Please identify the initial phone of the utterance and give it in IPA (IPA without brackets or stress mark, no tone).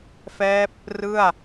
f